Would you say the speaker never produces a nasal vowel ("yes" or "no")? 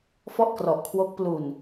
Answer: yes